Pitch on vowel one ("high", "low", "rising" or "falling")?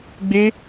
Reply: high